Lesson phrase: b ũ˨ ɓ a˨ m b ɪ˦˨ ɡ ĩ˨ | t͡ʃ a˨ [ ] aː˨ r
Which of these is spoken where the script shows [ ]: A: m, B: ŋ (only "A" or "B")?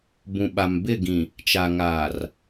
B